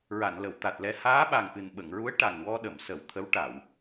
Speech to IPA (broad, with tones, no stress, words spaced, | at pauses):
ɹa˨˩˨nlə˨˩˨wt̪a˨˩t̚lɛ˧ haː˧˥ɓa˨˩ŋʔɨ˨˩n ɓə˨˩˨ŋɹu˧˥ə̯ ʈa˨˩ŋwɔ˧ɗə˨˩˨msə˨˩˨w t̪ʰə˧˥wʈa˨˩˨w